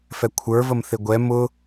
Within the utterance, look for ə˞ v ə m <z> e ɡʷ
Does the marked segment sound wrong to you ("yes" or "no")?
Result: yes